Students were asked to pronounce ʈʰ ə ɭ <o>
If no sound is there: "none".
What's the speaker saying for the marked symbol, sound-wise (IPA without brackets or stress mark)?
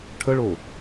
o